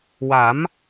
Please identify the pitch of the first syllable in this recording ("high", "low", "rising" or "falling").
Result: rising